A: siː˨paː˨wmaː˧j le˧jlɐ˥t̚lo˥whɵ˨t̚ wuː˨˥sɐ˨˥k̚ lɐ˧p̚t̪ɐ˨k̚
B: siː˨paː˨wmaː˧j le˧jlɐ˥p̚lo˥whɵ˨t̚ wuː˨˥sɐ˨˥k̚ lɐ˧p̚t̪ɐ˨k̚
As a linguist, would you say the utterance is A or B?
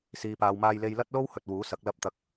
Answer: A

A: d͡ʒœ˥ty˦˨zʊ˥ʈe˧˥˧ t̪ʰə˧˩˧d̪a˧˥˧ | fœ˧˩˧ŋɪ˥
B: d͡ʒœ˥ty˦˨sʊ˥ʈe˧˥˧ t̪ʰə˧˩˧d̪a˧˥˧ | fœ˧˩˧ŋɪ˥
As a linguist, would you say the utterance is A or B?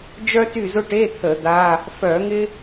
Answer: A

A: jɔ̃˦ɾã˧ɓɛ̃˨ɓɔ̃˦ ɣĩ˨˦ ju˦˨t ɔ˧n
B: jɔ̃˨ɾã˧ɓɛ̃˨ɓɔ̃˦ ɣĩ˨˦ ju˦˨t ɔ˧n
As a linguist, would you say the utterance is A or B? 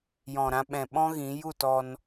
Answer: B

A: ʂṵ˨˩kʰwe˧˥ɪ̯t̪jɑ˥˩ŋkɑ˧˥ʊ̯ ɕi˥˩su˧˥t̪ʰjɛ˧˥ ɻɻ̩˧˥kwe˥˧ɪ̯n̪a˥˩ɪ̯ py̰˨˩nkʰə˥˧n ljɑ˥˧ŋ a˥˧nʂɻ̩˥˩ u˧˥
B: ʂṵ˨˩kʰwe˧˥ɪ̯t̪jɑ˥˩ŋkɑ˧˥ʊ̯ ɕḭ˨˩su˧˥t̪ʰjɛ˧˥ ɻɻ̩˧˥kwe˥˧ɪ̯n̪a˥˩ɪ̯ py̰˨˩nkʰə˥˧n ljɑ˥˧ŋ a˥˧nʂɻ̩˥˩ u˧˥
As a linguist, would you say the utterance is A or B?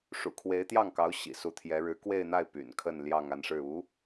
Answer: B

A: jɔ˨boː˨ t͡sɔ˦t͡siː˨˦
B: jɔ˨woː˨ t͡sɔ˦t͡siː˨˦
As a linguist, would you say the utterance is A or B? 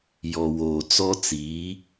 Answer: B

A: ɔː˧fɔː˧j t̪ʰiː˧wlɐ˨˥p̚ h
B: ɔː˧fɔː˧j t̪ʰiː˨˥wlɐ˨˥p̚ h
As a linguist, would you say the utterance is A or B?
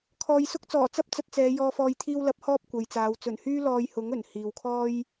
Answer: A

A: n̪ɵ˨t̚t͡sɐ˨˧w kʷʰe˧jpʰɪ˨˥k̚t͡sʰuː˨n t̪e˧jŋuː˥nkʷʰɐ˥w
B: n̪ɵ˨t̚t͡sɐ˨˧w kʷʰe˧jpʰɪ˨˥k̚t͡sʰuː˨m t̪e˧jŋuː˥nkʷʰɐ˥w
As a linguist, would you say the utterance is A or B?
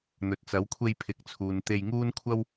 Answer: A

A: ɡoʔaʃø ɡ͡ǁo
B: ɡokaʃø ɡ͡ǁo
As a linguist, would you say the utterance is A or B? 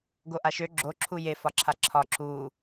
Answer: A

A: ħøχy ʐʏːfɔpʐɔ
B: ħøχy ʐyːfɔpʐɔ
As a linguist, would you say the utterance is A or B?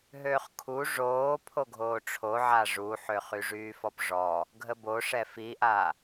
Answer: B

